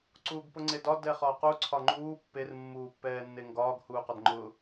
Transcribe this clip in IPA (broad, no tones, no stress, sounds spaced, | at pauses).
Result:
ǀ uː ɡ p ʊ ŋ͡ǀ e d ɒ d ɛ χ ɒː q u ǀʰ ɒ ŋ͡ǃ uː pː e r mː uː pː ɛː nː e ŋ ɡ ɒː ɡ h uː q ɒ d ŋ͡ǃ ʊ